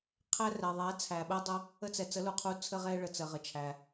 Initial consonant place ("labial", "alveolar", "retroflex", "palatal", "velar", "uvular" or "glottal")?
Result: uvular